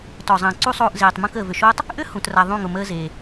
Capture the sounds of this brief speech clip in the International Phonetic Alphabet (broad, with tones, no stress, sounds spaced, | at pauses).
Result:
t ɔ˨ zˤ ə̃ː˨ ǀ u˦ sˤ oː˧ ʔ z eː˨ tˤ m ũ˧ k əː˨ v ʏ˨ ʃ oː˦ tˤ | ʔ ʏ˦ h ũ˨ t r a˨ ðˤ ũ˦˨ ŋ ʊ˨ m əː˦ z eː˨